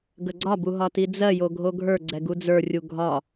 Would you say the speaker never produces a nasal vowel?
yes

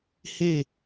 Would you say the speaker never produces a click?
yes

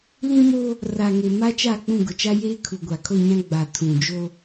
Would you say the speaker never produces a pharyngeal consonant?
yes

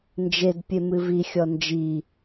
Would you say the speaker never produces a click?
yes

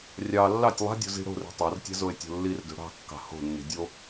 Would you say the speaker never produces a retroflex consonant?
no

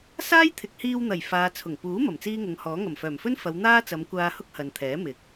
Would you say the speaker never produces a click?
yes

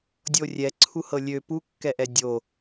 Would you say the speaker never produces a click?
no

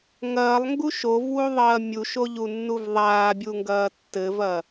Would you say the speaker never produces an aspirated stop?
yes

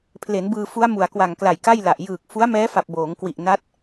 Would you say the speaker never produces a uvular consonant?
yes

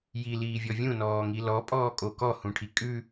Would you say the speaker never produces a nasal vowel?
no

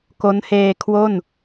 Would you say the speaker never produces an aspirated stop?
no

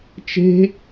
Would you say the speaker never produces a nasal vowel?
yes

